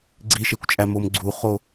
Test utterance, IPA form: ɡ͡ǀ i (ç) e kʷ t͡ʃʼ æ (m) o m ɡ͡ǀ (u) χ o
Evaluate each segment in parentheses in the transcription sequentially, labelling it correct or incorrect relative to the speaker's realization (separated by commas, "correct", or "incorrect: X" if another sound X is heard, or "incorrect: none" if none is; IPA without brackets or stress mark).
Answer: incorrect: ʃ, correct, correct